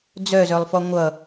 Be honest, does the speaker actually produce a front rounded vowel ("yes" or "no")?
yes